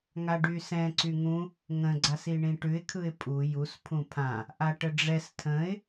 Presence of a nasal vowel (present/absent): present